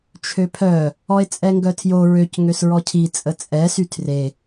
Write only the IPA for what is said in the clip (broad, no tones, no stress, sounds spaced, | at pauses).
t͡ʃʰ ø pʰ œ | ɔ e̯ t͡sʼ ɛ ŋ ɡ œ tʰ j o ɹ ø c ŋ ø s ɹ ɔ cʰ i t͡sʼ ə t͡sʼ ɛ s y tʰ r e